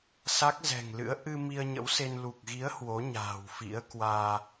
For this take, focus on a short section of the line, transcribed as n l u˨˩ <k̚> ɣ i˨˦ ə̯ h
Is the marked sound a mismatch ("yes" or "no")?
no